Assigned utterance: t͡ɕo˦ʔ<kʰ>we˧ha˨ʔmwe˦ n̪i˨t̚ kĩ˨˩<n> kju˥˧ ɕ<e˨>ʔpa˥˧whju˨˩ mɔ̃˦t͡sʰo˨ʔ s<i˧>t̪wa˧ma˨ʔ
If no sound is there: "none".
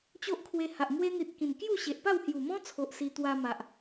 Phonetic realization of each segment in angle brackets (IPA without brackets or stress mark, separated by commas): kʰ, n, e˨, i˧